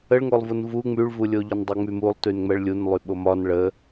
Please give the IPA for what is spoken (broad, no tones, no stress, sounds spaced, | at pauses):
ə ɭ ŋ o lˠ v u n v u ŋ͡m y ɭ v u lʲ o ʎ ɒ n dˤ ɛ ŋ͡m y m u lˠ t y n ŋ͡m ɛ ɭ lʲ u n lˠ y ɓ o m ɒ n ɭ ə